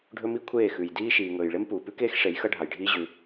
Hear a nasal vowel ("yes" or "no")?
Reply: no